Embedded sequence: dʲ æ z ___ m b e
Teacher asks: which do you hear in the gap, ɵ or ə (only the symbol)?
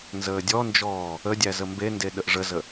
ə